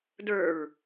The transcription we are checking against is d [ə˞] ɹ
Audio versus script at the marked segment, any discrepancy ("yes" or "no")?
no